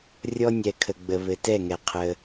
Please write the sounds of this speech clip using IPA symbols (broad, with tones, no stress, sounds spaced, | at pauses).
rʲ ɔ˦ nʲ ɛ˨ kʰ ə˨ ɡ͡b ə˨ β ɘ˨ t ɛ˦˨ ŋ ɛ˨ qʰ ə˧